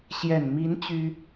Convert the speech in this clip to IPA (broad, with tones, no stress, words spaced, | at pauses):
ɕjɛ˨˩nmi˧˥n t͡ɕy˥